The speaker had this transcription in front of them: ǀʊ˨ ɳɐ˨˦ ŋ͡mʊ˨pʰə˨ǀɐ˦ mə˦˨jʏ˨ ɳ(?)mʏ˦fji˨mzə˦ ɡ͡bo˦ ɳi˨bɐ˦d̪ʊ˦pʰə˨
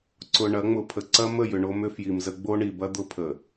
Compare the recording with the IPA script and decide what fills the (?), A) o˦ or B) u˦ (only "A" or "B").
A